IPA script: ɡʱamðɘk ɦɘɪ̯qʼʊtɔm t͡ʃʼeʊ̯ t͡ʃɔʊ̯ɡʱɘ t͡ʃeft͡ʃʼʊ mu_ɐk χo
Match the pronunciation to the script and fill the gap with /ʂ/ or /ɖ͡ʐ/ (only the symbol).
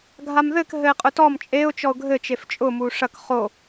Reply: ʂ